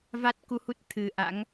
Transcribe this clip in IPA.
v a˦˥ t̚ k u˧ h u˦˥ t̚ t̪ʰ ɨ˨˩ ʔ a̰˧˥ ŋ

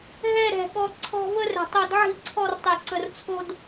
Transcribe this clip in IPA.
ɦ ɛ˥˧ ɾ ɛ̤˧˩ ɠ ɔ˧ ǀʰ ɔ̤˥˧ v ə˥ r ɛ̤˧˩ tˤ o˧ d ʕ i̤˥˧ ǀʰ ɔ˥˧ r tˤ e˧˩ ǀ ə˧ r t͡sʰ o˥ d

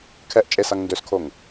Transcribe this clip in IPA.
kʰ ɛ ʔ t͡ʃʼ e s a ŋ n d ø s kʰ o ŋ

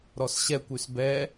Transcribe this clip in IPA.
ɾ ɔ s ɕ ɛ kʷ y s b ɛ

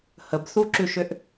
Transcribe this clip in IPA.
h ə b θ u ǁ ʉ ʃ ʏ ʔ

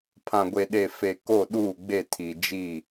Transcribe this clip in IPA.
pʰ ã˨ ɡʷ e˨ ɗ e˨ f e˨ k o˦˨ ɗ uː˦˨ ɡ͡b e˦˨ tʰ i˨ d͡ʒ i˦˨

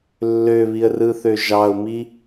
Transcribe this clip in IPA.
lː ø β i ə̯ r ɯ θ ø ʒ ɑ ʊ̯ m i

